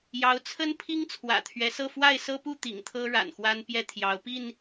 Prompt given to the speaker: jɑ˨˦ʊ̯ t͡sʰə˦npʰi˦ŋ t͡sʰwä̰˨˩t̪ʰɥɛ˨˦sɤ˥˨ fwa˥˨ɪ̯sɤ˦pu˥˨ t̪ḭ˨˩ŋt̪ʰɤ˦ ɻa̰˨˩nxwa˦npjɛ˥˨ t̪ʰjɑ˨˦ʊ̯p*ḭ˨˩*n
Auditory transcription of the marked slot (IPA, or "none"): i˥˨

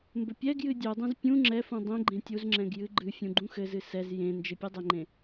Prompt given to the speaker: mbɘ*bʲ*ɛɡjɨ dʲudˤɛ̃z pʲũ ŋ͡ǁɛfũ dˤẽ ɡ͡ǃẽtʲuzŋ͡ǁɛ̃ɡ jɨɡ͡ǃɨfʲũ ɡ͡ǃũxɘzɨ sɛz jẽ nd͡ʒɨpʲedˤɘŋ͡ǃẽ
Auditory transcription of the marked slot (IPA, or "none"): pʲ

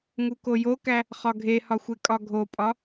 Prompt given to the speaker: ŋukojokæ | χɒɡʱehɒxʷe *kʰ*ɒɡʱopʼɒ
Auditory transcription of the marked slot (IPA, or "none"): kʼ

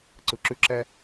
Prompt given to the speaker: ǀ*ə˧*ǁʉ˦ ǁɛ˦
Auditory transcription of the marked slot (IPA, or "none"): ɯ˧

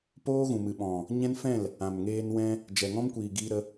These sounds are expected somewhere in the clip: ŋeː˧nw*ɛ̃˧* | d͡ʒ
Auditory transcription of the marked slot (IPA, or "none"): ɛ̃˧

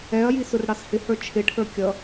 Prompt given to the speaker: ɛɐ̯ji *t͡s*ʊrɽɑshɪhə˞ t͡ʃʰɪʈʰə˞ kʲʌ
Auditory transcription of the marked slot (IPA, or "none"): s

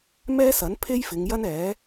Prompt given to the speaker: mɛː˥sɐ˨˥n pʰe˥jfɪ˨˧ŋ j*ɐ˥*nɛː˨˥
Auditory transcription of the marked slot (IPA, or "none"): ɐ˥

